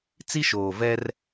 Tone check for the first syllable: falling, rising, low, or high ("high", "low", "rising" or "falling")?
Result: high